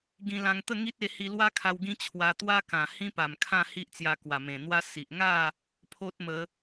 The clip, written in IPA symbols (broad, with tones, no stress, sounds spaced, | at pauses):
ɡ ĩ˧ l ã˧ ŋ t̪ ə˥˧ ŋ i˦ t̚ e˧ h i˧ l w a˦ kʰ a˧ w ɡ ĩ˦ t͡ɕʰ w a˧ t̪ w a˦ k ã˨˩ h ĩ˦ p a˨˩ m kʰ ã˥˧ h i˦ ʔ t͡s j a˧ k w a˨˩ m ẽ˨˩ n̪ w a˦ s i˨ ʔ ŋ a˥˧ | pʰ o˦ t̚ m ə˨˦